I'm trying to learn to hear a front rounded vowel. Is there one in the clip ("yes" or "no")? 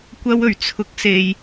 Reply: no